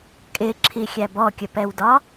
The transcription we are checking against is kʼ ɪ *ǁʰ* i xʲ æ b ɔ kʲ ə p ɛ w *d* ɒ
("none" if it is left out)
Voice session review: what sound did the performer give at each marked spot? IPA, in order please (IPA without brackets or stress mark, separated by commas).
ǁʰ, d